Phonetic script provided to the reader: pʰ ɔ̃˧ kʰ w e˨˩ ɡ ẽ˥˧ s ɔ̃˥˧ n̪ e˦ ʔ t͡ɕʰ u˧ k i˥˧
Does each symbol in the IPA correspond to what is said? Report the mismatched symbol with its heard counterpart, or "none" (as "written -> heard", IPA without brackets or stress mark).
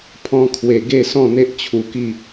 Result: ẽ˥˧ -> e˥˧